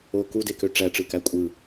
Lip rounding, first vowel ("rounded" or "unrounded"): rounded